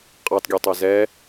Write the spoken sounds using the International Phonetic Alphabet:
qʼ ɑ t ɡʲ ø tˤ ø z ɛ

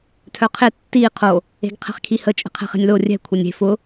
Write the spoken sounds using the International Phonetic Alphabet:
tʰ œ qʰ ɪ tː i qʰ o | e̤ ɡ qʰ ɛ̤ χ kʰ i h ə t͡ʃʼ ɛ̤ qʰ ɛ̤ χ e̤ nʲ l o rʲ ɛ̤ kʷʰ ɛ nʲ e̤ f ʊ

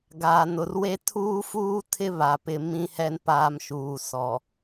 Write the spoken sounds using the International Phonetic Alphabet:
ɡ aː˨ n ʊ˨ r w e˦ tʰ uː˦ f uː˦ tʰ ɪ˦ β a˨ p ɪ˦ m ĩ˦ h ɛ˦ n p aː˦ m ʃ uː˨ s ɔ˨

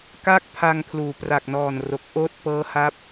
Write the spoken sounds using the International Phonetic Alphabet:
k a˦˥ k̚ pʰ a˧ ŋ pʰ l uː˩˦ p r a˨˩ k̚ n ɔː˨˩ n r o˨˩ k̚ ʔ oː˦˥ t̚ p ɤː˦˥ h a˦˥ p̚

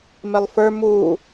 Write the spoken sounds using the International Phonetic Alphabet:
m ɪ lˠ f ə˞ m uː

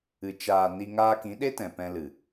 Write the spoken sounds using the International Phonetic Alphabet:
ɨ˨ t͡ʃ aː˨ n i˧ ŋ aː˧ k ĩ˨˦ ɗ e˦ t ɛ̃˨ p ɛ̃˧ l ɨ˨

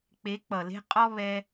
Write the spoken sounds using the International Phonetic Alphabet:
k͡p e˨˦ k͡p ʌ˨ l e̤˧ qʼ ɔ˦ β ɛ˧

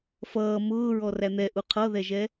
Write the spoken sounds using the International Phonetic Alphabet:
f ʌː m ʊː ɹ ɔ r æ n̪ ɛ ʔ u qʰ ʌ ð ɛ ʒ ɛ

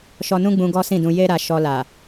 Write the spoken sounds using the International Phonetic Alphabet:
ʃ ɔ˧ n ũ˦ ɡ͡b ũ˧ ɡ ɔ˦ s ĩ˦˨ d ũ˧ j e˦ ɾ a˧ ʃ ɔ˧ l a˨

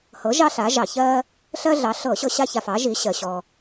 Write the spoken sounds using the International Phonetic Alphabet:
h ɤ˨˥ ʒ ɑ˥ ɬ a˨˥ ʒ ɑ˧˩˧ ç ɜ˥ | ɬ ɜ˥ ɮ ɑ˨˥ ɬ ɤ˧˩˧ ɕ ɤ˥ ɕ a˥ ç a˧ f ɑ˨˥ ʒ i˨˥ ɕ ɜ˧ ɕ ɔ˧

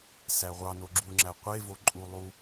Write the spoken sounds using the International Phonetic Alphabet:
s æ ʁʷ ɑ n o ɡ͡ǁ u ŋ͡ǁ æ qʷ e v o ǃʼ u lˠ u

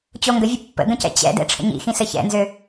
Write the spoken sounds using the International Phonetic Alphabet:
t͡ɕ o ŋ ɡ ə vʲ ə pː ə̰ ɡ ə̃ c ɛ̰ t͡ɕ ɛ̰ d ɛ̰ ʈ͡ʂʰ ə̰ ɲ ḭ x ĩ s ɘ ç ɛ̰ n z ø

